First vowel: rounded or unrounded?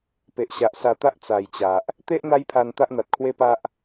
unrounded